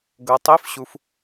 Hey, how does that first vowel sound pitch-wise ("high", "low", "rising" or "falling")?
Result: low